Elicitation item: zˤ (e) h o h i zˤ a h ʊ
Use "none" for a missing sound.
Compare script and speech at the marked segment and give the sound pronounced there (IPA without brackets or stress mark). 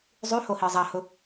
y